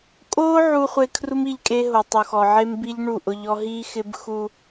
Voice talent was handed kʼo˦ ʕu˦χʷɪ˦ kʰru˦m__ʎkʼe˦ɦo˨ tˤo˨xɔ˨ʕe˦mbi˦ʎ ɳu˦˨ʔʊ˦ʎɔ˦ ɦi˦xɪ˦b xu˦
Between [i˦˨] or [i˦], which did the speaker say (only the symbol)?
i˦˨